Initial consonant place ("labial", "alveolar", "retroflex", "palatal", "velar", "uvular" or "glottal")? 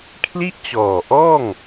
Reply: velar